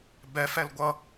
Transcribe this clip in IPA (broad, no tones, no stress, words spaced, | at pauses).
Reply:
bɛfɛl ɡʷʌ